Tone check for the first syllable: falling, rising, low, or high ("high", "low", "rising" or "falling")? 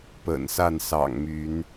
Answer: low